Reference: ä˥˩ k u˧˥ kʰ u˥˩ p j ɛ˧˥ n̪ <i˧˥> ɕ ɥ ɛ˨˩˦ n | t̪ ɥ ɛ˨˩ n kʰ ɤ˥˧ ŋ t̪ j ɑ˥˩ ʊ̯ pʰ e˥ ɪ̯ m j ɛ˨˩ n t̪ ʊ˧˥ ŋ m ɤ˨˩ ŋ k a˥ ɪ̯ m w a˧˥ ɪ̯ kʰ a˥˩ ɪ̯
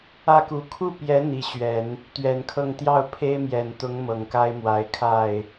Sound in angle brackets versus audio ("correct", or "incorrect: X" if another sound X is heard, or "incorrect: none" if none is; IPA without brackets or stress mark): correct